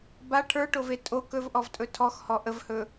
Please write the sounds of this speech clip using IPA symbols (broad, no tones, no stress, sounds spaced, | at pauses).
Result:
b a ʈʰ ə˞ ʈ o v e tʼ o k ɵ v ʔ ɔ v tʼ ɵ tʰ ɔ x h ɔ ʔ ə v h ɵ